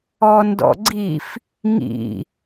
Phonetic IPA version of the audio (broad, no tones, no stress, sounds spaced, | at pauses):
ɔ n d ɔ̰ ɡ͡ǀ i f | ŋ ḭ